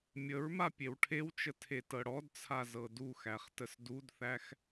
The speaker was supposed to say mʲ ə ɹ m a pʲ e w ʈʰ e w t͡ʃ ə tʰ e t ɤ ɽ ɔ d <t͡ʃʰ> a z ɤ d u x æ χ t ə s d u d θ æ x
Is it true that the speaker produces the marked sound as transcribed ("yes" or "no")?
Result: no